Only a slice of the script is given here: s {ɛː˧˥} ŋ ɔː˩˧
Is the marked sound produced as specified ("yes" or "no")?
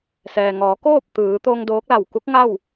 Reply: no